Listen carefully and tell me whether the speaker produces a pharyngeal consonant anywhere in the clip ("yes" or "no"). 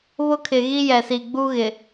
no